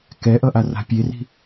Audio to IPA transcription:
k ɛ ʔ ʌ ʔ a r a̤ pʲ e r i̤

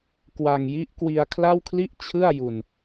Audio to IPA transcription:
k w a˧ ŋ j i˦˥ ʔ k w i˧ a̯ kʰ l a˥˩ w kʰ l i˥˩ ʔ t͡ɕʰ ɯ˥˩ a̯ j u˧ n

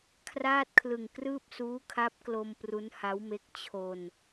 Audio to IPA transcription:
kʰ r aː˥˩ t̚ kʰ l ɯ˨˩ ŋ k r ɯː˥˩ p̚ s uː˦˥ kʰ a˦˥ p̚ k l o˧ m p r u˦˥ n h a˦˥ w m e˦˥ k̚ t͡ɕʰ o˧ n

